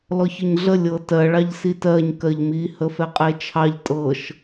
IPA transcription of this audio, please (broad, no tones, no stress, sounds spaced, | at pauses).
l ɔ ç ɔ ɲ ɮ ə lʲ ɤ t ɜ ɭ ɑ ʎ s i t ɜ ɲ k ɜ ʎ m i h ə f ɛ qʼ e t͡ʃʰ ɑ ʎ tʼ ɤ ʃ